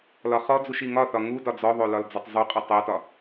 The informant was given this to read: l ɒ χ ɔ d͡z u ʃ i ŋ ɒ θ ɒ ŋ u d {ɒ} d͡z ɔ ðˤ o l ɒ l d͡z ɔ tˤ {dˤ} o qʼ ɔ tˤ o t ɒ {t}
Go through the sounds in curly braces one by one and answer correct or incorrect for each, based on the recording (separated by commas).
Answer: correct, incorrect, incorrect